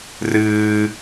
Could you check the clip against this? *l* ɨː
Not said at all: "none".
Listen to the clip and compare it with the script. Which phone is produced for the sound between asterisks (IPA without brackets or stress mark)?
r